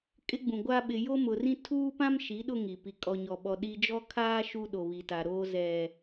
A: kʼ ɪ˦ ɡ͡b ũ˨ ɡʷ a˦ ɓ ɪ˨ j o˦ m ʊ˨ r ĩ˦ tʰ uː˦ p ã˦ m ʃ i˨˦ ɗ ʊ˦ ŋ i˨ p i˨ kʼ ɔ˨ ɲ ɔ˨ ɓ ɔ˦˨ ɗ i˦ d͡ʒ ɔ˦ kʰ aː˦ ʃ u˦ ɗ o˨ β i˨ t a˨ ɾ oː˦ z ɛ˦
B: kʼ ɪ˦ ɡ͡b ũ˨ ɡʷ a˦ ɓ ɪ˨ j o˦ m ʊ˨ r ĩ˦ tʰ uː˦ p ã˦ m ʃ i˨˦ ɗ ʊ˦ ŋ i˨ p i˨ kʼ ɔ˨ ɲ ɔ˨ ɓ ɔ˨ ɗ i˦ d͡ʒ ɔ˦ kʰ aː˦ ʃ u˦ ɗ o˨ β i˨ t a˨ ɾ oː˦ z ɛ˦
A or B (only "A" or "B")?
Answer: B